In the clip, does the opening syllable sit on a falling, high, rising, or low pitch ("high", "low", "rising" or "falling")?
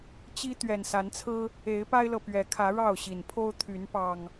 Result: high